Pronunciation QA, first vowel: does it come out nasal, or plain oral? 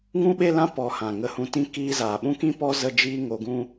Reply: nasal